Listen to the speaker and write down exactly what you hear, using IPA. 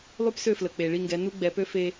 lˠ y˦ p s ø˦˨ f l ə˨ k͡p e˨ ɭ i˦˨ ŋ ɡ ɛ˨˦ n u˦ ɡ͡b ɛ˨˦ p ø˦ f e˦

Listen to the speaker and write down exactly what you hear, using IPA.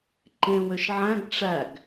ǃ ẽ w ø ʃ ʕ æ̃ ɡ ʈ͡ʂ æ ɡ

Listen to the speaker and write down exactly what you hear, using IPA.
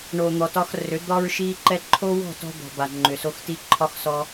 ɳ o˨ n̪ ɔ˨ t ɒ˧ x r ʏ˨˦ d̪ ɒ˦ ɹ ʃ i˧ ǃ ɛ˧ ǃʰ o˦ w ɔ̤˦˨ t ɔ̤˧ d̪ ɔ̤˨ b a˨ ŋ͡ǃ ʏ˨ s o˧ x t i˧ ǃʰ ɒ˧ x s ɔ˧

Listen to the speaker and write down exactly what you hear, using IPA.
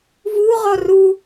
v u ʁ ɔ r u

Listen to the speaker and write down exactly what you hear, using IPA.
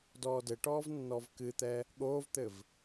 d ɔː d ɘ ʈ ɔː v nː ɔ v k ɨ t̪ ɛ | ɠ oː v t̪ ɘ v

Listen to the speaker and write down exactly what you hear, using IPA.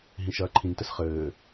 ɦ ĩ ʃ ɐː ǃʰ ĩ n t ɘ s χ ɘː

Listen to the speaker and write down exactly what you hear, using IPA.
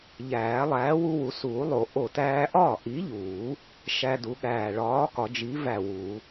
ʎ æː˨˩˦ lˠ æː˨˥ w u˦ w u˨˩˦ s uː˨˩˦ lˠ o˨˩˦ ʔ o˧˩ t æː˦ ʔ ɒː˥˩ ʔ i˨˥ ʎ uː˨˩˦ | ʃ æ˦ d u˨˥ ɠ æː˧˩ ɭ ɒː˨˥ k ɒ˨˩˦ d͡ʒ i˨˥ v æ˧˩ w u˨˩˦

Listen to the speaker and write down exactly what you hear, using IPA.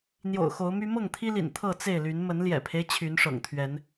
n̪ j o̰˨˩ ʊ̯ x o˨˦ ʊ̯ m y˦ m ɤ˥˨ ŋ t̪ʰ i˦ l ḭ˨˩ n t̪ʰ ɤ˥˨ t͡s e˥˨ ɪ̯ l y˨˦ n m ə˨˦ n l j ɛ̰˨˩ pʰ e˦ ɪ̯ t͡ɕʰ y˨˦ n ʂ ɤ̰˨˩ ŋ t̪ʰ ɥ ɛ˨˦ n

